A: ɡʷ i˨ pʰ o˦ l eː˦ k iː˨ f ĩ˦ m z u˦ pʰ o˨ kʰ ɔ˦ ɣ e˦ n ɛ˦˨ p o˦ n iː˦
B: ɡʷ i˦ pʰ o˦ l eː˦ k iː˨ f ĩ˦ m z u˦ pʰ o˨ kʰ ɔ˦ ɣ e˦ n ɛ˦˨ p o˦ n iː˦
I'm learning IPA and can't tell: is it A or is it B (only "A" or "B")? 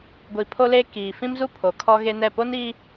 A